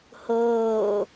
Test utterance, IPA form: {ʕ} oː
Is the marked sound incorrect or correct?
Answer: incorrect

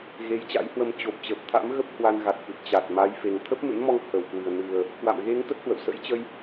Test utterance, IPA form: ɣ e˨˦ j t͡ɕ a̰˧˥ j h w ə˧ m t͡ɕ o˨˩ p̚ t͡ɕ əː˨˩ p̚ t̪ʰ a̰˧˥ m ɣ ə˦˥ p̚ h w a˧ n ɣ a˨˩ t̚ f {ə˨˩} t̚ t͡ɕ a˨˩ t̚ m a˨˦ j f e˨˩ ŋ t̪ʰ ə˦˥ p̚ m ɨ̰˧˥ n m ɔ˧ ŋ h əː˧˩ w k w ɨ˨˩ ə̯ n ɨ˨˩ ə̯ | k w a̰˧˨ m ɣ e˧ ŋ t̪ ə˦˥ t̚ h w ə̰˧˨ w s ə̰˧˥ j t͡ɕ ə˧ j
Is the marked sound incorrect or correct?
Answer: incorrect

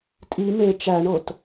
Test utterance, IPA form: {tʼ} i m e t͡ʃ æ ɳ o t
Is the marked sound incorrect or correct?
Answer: correct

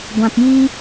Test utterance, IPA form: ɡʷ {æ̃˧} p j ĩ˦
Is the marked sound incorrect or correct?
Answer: incorrect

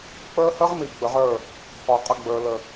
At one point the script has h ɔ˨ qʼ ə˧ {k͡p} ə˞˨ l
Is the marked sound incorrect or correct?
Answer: incorrect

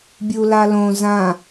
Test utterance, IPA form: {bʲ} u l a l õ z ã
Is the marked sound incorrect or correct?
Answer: correct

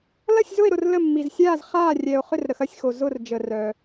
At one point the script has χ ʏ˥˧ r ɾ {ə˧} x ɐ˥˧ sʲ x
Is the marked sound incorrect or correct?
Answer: correct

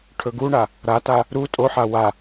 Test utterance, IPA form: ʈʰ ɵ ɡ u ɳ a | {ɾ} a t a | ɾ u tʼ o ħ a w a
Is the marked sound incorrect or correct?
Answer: correct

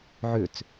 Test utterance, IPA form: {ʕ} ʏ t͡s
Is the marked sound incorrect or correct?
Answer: correct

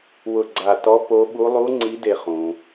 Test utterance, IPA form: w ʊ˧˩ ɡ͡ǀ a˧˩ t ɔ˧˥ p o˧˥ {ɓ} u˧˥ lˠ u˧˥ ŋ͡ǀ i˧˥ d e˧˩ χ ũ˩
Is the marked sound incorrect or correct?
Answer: correct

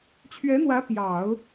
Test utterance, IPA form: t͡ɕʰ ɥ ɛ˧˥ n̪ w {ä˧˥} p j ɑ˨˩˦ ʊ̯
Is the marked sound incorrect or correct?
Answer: correct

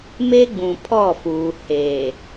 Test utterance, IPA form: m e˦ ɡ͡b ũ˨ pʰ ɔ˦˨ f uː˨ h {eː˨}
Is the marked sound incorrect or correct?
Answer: correct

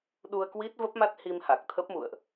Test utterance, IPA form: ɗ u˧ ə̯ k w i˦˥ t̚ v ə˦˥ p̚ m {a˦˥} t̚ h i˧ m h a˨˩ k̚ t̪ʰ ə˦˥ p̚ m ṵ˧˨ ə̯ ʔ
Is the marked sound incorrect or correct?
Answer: correct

